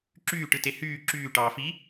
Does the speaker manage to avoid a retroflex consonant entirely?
no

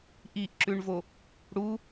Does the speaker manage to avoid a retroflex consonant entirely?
no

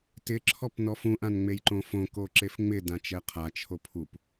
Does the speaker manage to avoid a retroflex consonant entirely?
yes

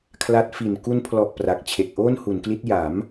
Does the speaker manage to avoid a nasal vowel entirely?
yes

